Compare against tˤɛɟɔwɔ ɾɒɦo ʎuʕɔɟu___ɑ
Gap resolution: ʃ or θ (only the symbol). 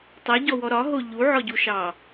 ʃ